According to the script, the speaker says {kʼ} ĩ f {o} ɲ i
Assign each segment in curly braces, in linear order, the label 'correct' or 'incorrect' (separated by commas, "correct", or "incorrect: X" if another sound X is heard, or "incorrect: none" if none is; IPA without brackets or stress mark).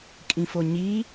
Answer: correct, correct